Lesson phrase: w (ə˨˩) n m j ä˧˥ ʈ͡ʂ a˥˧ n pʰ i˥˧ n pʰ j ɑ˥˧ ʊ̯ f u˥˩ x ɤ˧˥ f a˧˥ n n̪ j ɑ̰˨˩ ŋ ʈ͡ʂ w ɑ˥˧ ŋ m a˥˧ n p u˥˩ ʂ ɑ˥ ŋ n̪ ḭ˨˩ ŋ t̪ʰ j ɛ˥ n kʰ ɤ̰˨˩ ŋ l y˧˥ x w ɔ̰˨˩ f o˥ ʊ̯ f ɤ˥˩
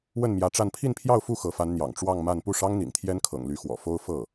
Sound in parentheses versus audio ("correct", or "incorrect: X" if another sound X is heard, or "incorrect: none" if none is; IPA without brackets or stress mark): incorrect: ə˥˩